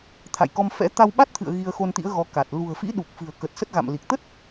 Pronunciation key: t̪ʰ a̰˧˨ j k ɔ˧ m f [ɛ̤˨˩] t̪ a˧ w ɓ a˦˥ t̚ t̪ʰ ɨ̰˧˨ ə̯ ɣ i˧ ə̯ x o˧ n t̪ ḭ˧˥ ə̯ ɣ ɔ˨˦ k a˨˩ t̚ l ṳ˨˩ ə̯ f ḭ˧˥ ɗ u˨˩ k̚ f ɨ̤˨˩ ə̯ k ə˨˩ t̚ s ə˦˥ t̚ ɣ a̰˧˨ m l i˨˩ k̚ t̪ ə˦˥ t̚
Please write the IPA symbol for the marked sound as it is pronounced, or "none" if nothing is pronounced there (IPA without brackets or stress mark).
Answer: ɛ̰˧˥